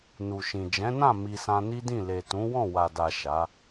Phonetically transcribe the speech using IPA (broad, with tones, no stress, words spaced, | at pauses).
nu˨ʃĩ˨ d͡ʒɛ̃˨˦nã˦˨ mi˧sã˧ni˦dĩ˦˨ le˨ tũ˨˦wɔ̃˦˨ wa˨da˨ ʃa˨˦